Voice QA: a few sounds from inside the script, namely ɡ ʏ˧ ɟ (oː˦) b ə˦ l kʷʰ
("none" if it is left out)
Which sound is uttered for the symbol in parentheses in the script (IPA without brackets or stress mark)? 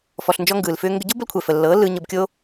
o˦